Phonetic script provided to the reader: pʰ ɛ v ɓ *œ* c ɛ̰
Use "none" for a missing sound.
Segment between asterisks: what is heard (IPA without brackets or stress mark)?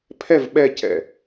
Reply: ɛ